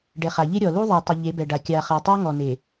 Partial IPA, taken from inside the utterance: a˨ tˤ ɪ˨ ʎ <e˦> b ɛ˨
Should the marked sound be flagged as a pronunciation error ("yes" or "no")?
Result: yes